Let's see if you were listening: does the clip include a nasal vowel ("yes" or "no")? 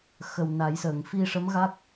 no